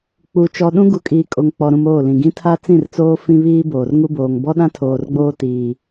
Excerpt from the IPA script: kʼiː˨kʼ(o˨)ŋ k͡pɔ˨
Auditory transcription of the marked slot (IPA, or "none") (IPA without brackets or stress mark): o˨